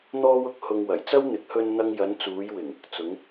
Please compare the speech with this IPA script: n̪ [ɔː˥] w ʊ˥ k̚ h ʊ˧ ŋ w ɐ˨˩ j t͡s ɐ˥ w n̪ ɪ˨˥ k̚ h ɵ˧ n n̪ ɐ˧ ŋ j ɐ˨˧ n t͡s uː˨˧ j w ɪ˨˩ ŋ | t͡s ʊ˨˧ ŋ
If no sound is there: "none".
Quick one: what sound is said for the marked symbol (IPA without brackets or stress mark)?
ɔː˥